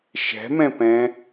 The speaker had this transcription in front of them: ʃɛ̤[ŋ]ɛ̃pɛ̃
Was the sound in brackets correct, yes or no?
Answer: no